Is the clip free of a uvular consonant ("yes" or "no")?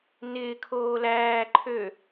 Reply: yes